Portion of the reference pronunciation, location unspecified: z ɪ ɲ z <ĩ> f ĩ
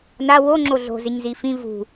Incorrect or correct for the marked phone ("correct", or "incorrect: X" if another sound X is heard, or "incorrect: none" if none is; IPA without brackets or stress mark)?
incorrect: i